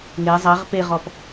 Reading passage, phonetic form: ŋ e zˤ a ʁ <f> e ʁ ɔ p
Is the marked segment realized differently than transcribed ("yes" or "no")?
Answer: yes